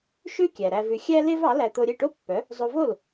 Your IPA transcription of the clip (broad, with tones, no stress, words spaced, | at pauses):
ʃʉ˥kʲæ˩ ɾæ˧vʉ˧ xʲæ˥ le˥vɑ˩˥læ˧ t̪o˧ɾʲe˥˩ʈo˥pːœ˩˥ | zˤo˧vo˥˩l